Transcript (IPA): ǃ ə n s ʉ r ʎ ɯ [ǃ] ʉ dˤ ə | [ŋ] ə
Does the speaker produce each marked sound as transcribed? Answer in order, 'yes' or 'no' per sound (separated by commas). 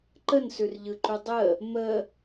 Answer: yes, no